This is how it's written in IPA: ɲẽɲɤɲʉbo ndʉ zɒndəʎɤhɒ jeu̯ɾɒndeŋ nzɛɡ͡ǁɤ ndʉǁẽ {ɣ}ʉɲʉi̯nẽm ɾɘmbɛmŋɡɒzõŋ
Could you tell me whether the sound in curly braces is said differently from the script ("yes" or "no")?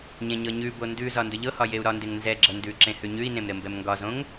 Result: yes